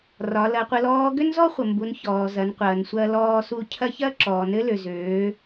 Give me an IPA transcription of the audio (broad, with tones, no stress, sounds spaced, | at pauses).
r ɒ˩˧ l ɐ˩˧ qʷ ə˩˧ l ɔː˧˥ ɡ ø˥ n z ɔ˥ χʷ ə˩ m b u˩˧ n ç ɔː˩ z ɐ˩˧ n qʷ ɐː˩ n sʷ ɐː˧ l ɔː˧ s u˧˥ cʰ ɐ˥ ç ɐː˥ ǁ ɔː˩ n ɘ˧˥ l ø˩ z øː˩˧